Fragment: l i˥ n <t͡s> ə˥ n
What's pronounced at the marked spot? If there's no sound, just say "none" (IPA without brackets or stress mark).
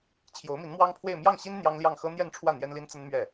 t͡s